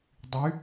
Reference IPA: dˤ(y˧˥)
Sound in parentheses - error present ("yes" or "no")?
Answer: no